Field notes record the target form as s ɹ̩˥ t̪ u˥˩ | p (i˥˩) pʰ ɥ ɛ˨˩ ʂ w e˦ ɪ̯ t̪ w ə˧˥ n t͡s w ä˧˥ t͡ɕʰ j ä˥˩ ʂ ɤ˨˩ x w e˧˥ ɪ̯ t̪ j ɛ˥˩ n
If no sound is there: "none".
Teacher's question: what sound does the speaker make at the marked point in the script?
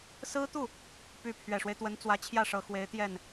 y˥˩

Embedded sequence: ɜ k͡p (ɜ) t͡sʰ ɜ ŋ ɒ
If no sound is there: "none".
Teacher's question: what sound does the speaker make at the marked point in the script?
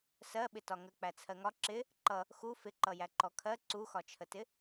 æ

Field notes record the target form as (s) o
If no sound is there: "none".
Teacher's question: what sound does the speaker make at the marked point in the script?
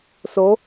s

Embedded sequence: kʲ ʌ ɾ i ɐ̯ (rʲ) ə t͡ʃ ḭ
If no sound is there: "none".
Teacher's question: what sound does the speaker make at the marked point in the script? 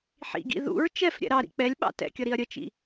ɾʲ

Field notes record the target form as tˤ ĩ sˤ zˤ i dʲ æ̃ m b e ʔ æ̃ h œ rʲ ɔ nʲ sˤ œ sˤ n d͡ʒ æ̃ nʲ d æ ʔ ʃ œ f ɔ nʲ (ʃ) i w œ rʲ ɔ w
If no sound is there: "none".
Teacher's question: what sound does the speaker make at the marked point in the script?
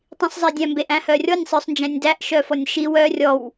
ʃ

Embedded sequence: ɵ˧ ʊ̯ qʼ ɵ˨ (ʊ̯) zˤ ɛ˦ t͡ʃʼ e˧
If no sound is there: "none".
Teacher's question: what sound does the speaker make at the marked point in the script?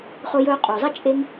ʊ̯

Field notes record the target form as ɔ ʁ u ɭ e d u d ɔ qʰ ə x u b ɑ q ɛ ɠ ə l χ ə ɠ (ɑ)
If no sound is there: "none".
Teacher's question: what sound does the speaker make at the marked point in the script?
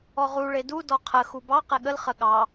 ɑ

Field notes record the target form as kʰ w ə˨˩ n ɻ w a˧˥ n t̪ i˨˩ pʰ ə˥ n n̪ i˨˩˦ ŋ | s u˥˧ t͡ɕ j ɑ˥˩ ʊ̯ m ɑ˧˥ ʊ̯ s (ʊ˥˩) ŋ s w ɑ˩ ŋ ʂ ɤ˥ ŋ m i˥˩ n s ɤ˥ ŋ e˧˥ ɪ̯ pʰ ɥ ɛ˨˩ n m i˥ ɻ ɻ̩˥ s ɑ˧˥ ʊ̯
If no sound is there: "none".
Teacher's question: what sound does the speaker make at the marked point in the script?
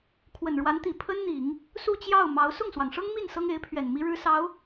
ʊ˥˩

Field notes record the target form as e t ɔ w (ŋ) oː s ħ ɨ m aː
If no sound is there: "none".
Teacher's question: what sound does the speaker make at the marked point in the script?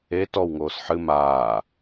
ŋ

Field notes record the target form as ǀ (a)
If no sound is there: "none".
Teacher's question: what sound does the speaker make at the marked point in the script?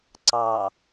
ɑ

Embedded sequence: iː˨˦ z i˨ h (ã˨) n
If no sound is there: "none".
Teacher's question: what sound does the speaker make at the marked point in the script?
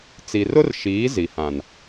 ã˨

